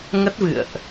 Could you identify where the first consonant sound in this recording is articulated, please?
velar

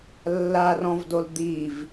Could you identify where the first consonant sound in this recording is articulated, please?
alveolar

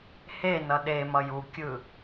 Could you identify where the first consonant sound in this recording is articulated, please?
glottal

